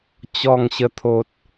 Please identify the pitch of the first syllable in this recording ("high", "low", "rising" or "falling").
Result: falling